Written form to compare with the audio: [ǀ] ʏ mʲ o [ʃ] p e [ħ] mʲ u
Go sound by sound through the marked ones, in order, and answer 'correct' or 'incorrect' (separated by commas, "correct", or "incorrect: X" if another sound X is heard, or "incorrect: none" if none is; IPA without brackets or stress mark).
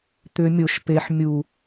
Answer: incorrect: t̪, correct, correct